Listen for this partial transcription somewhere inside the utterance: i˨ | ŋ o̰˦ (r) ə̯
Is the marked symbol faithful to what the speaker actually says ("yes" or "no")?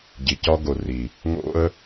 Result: no